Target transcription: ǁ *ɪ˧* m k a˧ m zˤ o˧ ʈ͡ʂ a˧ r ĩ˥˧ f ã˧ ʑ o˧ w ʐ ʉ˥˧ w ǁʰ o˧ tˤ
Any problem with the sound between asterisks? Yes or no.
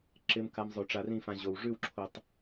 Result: no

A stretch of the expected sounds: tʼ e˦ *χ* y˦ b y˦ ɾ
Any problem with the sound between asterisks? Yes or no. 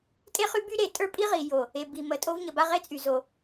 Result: no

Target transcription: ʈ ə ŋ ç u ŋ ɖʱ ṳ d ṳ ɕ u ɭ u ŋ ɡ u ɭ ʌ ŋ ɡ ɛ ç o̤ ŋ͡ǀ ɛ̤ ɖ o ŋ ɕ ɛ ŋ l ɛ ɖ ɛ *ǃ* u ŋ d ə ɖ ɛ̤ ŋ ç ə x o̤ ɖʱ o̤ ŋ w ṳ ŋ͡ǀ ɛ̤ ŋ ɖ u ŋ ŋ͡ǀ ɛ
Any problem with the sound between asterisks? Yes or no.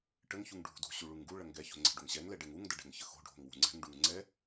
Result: yes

